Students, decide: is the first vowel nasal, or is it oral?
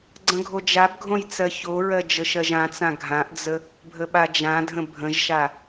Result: nasal